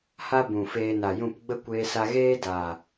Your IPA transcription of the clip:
h a˦ b ũ˨ f eː˧ n a˨ j ũ˦˨ p ɡ͡b ə˦ kʷ eː˧ s a˧ ɣ eː˦ d a˨

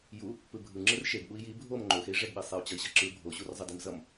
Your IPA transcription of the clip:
j u | p ɯ bʱ ɯ ŋ͡ǁ ɯ r ʃ e ɡ ɓ u i̯ j i bʱ o m ŋ͡ǃ o x e i̯ ʐ ɛ ɡ ɓ i sˤ e u̯ t͡ɕ ʌ i̯ ɕ ʌ ǁ ɯ bʱ o ɕ u r zˤ ʌ d i m z ʌ m

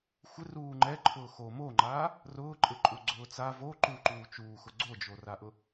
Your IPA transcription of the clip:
xʷ ɪ r uː ŋ͡ǃ ɛ ǃʰ ʊː x o m o ŋ͡ǃ aː | r ʊː ǃʼ ɪ ǃʼ u ɡ͡ǀ ʊː t͡s a v o ǃ u ǃ uː t͡ʃ uː x ʊ ɡ͡ǀ o d͡ʒ o r a ʔ ʊ

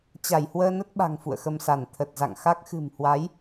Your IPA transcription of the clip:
t͡ɕ a˧˩ j h w əː˧ n ə˦˥ t̚ ɓ a̤˨˩ ŋ f ṵ˧˨ ə̯ x ə˧ m s a˧˩ n t̪ʰ ə˨˩ t̚ z a̰˧˨ ŋ x a˦˥ k̚ x ɨ̤˨˩ m h w a˨˦ j

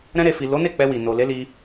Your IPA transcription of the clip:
ɾ ɛ̃˧ ɾ e˨ f i˨ l o˨˦ n e˦˨ k͡p ɛ˧ w i˨ n o˨ l e˨˦ l i˧

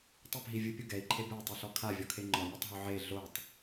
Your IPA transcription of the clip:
tˤ e p ɦ i vʲ ɯ pʲ o ɡ ɛ i̯ ǃʰ e b ɛ u̯ tˤ ɯ ɬ ɔ kʰ a vʲ ɔ kʰ e ŋ͡ǃ ɔ mʲ a tˤ ɦ o ʕ e ɮ o tˤ

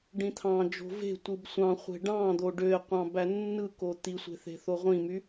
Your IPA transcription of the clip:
ɖ ĩ t̪ʰ ɑ̃ d͡ʒ o̤ v e̤ tʷ ɯ b sʷ ɑ̃ χʷ e̤ ɖ ɑ̃ d̪ o ɖ ø e̯ qʷ ɑ̃ b æ nː ɯ k o t̪ i sʷ e̤ θ e̤ θ o ʁʷ ĩ m y

